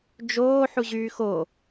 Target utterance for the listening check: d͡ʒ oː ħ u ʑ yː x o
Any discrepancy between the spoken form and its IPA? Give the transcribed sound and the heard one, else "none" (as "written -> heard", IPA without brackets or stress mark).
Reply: none